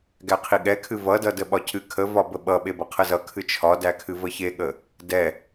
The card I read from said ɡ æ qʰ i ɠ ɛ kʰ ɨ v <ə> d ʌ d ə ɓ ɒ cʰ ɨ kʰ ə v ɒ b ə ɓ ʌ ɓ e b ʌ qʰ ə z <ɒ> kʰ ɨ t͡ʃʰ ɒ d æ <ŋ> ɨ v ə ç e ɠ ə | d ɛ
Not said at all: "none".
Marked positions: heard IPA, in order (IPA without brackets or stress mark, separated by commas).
ʌ, ʌ, kʰ